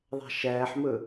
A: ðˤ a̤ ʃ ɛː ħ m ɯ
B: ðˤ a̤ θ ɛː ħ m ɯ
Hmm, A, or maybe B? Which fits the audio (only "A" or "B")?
A